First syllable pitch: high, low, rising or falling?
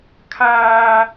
high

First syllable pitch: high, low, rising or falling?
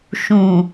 low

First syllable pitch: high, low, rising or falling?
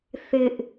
high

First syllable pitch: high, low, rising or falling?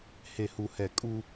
low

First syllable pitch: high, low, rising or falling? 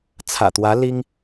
low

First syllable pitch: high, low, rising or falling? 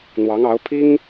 rising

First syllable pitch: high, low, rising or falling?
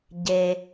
low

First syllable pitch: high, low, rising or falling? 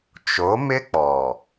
rising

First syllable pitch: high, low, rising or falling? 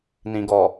low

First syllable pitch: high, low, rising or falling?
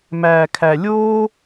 low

